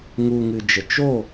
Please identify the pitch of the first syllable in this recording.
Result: low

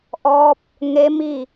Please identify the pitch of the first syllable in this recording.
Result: rising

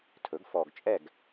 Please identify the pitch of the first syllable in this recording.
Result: rising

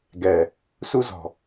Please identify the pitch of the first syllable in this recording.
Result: low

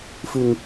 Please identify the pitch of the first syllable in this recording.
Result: low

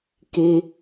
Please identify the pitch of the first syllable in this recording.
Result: high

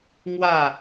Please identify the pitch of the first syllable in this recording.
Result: falling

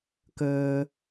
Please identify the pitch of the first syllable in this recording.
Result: low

